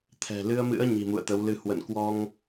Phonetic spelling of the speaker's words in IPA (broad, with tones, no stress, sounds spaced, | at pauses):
t̪ʰ ɛ̤˨˩ l ɨ˧ ə̯ m ɨ̰˧˥ ə̯ ɲ i̤˨˩ m ṵ˧˨ ə̯ t̪ ə˨˦ w l ɨ˧ h w ə̰˧˨ n k w ɔ˧ ŋ